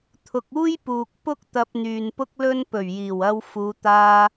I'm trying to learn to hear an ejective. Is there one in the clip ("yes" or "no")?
no